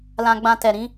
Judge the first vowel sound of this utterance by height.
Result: low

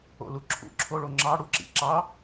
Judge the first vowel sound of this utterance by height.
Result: mid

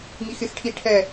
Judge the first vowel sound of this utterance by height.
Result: high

